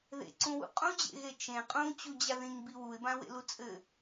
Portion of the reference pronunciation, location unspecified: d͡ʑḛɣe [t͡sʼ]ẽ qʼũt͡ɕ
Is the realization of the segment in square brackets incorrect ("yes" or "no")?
yes